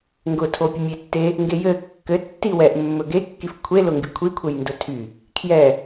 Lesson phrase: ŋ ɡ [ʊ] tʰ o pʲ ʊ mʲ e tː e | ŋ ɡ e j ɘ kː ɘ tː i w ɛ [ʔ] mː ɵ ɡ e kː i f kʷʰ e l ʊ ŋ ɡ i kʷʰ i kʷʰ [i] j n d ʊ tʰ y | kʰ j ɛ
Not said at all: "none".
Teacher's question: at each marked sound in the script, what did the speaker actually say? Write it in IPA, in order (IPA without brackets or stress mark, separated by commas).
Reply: ʊ, ʔ, e